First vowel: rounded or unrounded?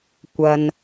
unrounded